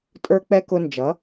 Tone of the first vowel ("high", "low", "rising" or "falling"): high